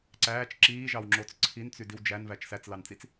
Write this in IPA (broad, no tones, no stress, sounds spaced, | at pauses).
ǀ æː t͡ʃ ǁ iː ʒ ɑ w ŋ͡ǁ o t͡s ǀʰ i n t͡s y d i w d͡ʒ æ n v æ t͡ʃ s æ t͡s l ɑ n t͡s i t͡s